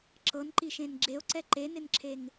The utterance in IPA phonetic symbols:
ǁ ɤ n ǃ i ʃ ẽ n ɡ͡ǁ e o̯ ǀ ɛ ǃ e n ɪ n ǁʰ e ŋ

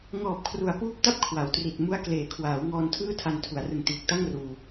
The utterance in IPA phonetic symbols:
ŋ ɔː˨˩ p̚ kʰ r u˩˦ a̯ p uː˦˥ p̚ t a˥˩ p̚ kʰ w a˩˦ w t r i˨˩ t̚ m u˦˥ a̯ k l eː˩˦ kʰ w aː˩˦ w ŋ ɔː˧ n tʰ ɯː˥˩ tʰ a˧ n tʰ u˩˦ a̯ r ɯ˨˩ ŋ t iː˨˩ k̚ t a˥˩ ŋ r uː˧

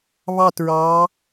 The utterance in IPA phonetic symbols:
β ɑ˦˨ t ɹ ɑ˨˦

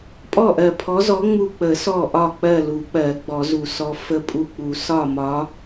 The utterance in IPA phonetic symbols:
pʼ ɔ˥˨ ʔ ɜ˧˩ pʰ ɔ˧˥ z ɔ˧˥ ŋ͡m u˧˩ k͡p ə˨˩˦ s ɔ˧˩ ʔ ɒ˧˩ k͡p ɜ˥˨ l u˨˩˦ k͡p ɜ˨˩˦ ɡ͡b ɔ˨˩˦ z u˨˩˦ s ɔ˧˥ f ə˧˥ pʼ u˧˩ k͡p u˨˩˦ s ɒ˥˨ m ɒ˧˥

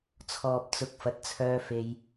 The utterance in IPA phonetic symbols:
t͡sʰ ɔː˨ p̚ t͡s ʊ˨˥ k̚ f ɐ˨˥ t̚ t͡sʰ œː˧ f e˧ j

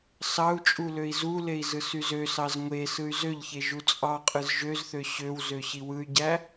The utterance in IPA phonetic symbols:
s ɑ u̯ t͡ʃʼ u l ø i̯ z u l e i̯ z ɯ s y z ø s ɑ z ŋʷ e s ɯ y̯ z ø ʎ ç e ʒ u t͡sʼ ɑ qʼ ɯ z ʒ ø z θ ø ɕ ø w z ø ɕ i w ɯ y̯ ɟ æ

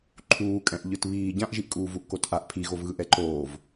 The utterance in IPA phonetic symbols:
ǃʰ uː kʼ ɛ̃ ʔ ʎ ɯ t β iː ɟ ã ʔ ʒ i ʔ kʼ uː v u ʔ k o t ʔ a ʔ pʰ i ɣ o v ɣ ɯ ʔ ɛ ǃ oː v

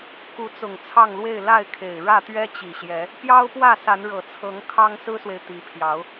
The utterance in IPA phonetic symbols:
k u˨˦ t͡s ʊ˨˩ ŋ t͡sʰ ɑ˥˨ ŋ l w e˥˨ ɪ̯ l a˥˨ ɪ̯ kʰ e˨˩ ɪ̯ ɻ ä˥˨ t̪ ɥ ɛ˦ t͡ɕ i˨˩ ɕ j ɛ˨˦ | p j ɑ˦ ʊ̯ p w ä˥˨ s a˨˦ n ɻ ɤ˨˩ t͡sʰ ɤ˨˦ ŋ kʰ ɑ˦ ŋ s ɹ̩˦ s w e˨ ɪ̯ t̪ i˨˦ pʰ j ɑ˨˦ ʊ̯

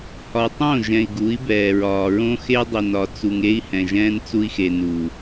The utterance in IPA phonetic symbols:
h ɒ˨ tˤ õ˦˨ ʒ ɛ̃˨ i̯ ɡ u˨˦ i̯ b ɛː˨ ɹ ɒː˨ ɹ õ˦ x e˦ dˤ i˨ n ɒ˨ t͡s u˨ ŋ e˦ i̯ h ɛ̃˨ ʒ ɛ̃ː˦ n t͡s u˦ i̯ x e˨ n u˨

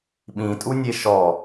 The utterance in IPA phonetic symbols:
ɓ ĩ tʼ u nʲ e ʃ ɔ

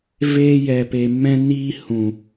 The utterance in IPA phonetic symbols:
v eː˧ j ɛ˨ p e˨ m ɛ̃˦ n iː˦ h ũ˨

